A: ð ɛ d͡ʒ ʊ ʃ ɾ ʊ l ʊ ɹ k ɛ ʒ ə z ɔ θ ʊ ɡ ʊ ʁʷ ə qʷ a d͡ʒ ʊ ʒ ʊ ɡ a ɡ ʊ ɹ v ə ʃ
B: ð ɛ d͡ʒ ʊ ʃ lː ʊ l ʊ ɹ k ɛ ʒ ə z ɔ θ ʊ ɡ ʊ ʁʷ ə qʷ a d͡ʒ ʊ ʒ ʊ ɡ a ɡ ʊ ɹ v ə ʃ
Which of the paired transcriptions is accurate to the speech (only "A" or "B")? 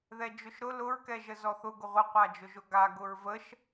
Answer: A